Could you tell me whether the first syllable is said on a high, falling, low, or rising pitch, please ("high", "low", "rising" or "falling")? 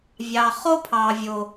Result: low